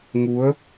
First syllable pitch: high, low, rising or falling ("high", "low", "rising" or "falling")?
rising